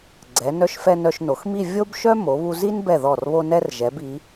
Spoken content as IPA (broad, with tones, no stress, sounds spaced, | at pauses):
ɡ͡ǀ ɛ˩˧ n œ˧ ʃ f ɛ˧ n œ˧ ʃ n o˩˧ x m i˥˧ vʲ o˥ b ʃ œ˥ m o˩˧ β u˧ z i˥ n b ɛ˧˩ ð ɔ˧˩ r β o˧ n ɛ˧ r ʒ ɛ˩˧ b i˩˧